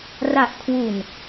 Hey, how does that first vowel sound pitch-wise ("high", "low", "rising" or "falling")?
low